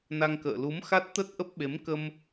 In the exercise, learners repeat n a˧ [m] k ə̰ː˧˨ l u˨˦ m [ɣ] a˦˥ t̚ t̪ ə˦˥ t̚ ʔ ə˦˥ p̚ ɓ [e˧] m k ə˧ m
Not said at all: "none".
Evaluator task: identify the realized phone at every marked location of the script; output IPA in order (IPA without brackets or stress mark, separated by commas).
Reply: ŋ, x, e˨˦